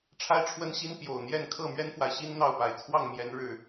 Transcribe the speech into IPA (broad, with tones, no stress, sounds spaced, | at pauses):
ʈ͡ʂʰ a˦ ɪ̯ ʈ͡ʂʰ w ə˦ n ɕ i˦ n p j o˨˩ ʊ̯ n̪ j ɛ˥˨ n kʰ ɤ˥˨ m ɥ ɛ˦ n f w a˨ ɪ̯ ɕ i˦ n n̪ ɑ˥˨ ʊ̯ p a˨˩ ɪ̯ t͡sʰ w ɑ˥˨ ŋ m j ɛ˨˦ n ɻ ɻ̩˨˩